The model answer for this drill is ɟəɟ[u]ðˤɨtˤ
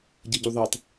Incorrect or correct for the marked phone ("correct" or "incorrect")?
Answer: correct